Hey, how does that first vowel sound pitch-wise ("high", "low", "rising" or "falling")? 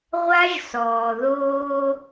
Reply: high